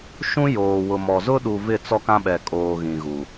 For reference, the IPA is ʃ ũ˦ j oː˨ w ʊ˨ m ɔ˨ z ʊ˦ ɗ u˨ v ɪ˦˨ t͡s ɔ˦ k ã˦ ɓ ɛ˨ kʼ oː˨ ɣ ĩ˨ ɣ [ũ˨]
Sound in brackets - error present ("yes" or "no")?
yes